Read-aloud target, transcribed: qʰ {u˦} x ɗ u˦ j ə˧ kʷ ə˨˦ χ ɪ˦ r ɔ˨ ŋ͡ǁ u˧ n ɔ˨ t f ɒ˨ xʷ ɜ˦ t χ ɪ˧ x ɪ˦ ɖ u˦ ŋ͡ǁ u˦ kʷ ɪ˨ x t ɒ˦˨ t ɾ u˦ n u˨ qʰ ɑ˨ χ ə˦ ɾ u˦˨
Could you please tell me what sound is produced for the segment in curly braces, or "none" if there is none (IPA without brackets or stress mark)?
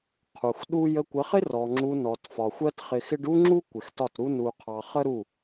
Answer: u˨